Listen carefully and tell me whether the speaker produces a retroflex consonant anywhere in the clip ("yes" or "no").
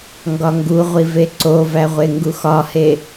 no